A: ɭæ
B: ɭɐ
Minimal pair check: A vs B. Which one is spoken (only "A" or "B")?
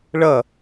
B